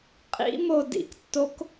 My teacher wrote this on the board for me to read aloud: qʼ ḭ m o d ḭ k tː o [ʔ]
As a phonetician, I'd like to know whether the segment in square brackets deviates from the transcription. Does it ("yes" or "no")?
yes